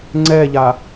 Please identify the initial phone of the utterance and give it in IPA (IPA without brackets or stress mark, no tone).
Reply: ŋ͡ǀ